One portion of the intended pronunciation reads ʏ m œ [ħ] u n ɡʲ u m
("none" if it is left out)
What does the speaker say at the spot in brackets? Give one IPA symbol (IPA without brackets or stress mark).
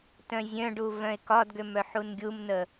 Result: ħ